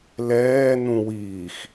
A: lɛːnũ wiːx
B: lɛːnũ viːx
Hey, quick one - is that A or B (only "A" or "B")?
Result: A